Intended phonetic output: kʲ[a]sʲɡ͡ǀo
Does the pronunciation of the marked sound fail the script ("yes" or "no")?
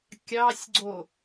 yes